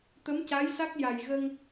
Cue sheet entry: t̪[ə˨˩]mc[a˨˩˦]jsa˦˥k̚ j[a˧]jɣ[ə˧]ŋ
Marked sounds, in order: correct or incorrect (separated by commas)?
incorrect, incorrect, incorrect, correct